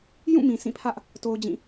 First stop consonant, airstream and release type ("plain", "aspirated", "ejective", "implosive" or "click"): aspirated